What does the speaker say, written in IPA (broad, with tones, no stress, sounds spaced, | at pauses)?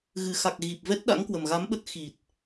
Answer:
ɣ ɨ˨˩ x a˨˩ k̚ ɣ i˨˩ p̚ v ɛ˦˥ t̚ ɗ a̰˧˥ ŋ k w ə˨˩ m ɣ a˨˦ m ɓ ə˦˥ t̚ x i˨˩ t̚